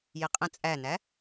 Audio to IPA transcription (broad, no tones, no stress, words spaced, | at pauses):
jɪqʼə̃ t͡sʼænæ